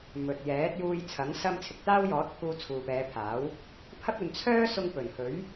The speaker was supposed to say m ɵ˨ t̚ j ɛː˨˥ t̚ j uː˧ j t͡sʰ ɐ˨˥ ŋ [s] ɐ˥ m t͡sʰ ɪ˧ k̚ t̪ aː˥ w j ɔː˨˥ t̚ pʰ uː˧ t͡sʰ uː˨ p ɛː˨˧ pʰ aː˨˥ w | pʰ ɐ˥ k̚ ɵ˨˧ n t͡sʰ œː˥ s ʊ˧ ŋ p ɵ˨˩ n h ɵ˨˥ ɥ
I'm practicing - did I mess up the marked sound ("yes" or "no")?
no